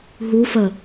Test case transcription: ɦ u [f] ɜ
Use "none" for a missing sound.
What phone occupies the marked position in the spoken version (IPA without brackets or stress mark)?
f